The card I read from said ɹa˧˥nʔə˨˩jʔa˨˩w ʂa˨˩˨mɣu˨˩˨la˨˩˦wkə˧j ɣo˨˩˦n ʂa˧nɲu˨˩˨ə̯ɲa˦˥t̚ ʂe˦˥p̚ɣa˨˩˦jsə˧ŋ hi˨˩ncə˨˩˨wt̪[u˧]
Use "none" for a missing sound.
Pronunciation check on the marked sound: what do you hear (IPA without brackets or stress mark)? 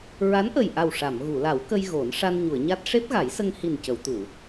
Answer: u˨˩˨